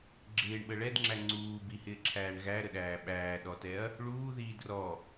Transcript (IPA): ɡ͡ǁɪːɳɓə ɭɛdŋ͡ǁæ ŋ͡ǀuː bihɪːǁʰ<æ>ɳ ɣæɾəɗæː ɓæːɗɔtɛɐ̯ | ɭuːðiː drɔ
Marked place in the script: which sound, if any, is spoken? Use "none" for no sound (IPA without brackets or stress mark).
æː